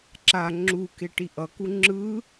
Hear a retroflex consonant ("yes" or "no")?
yes